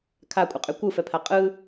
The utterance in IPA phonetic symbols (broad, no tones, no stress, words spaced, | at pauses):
kʰakʷʼəqʼy kʷɯfɛpʰa qʼɯ